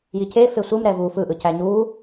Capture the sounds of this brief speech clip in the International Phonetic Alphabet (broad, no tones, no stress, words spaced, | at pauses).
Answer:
jice fesʷɯm ɾɛvu fɯʔɯcæ ɲu